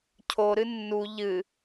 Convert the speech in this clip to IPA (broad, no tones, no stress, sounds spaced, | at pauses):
cʰ o ɾ ɨ nː u ʎ ɨ